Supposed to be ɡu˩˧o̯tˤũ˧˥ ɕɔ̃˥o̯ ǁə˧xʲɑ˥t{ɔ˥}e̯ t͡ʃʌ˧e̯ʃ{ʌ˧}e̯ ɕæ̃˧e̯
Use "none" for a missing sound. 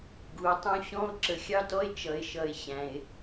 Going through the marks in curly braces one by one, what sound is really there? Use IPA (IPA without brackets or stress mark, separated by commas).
ɔ˥, ʌ˧